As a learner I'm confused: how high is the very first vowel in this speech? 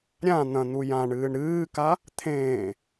low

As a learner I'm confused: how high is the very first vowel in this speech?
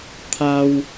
low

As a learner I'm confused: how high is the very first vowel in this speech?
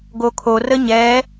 mid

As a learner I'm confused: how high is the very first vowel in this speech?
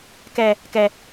mid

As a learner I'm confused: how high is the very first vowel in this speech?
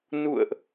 high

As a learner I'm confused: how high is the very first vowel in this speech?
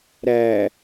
low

